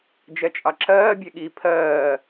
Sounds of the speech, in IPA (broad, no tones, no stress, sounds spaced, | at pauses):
d͡ʒ ɛ t͡ʃʼ ɑ ǁ ɜː bʲ ɛ ɠ i pʰ ɜː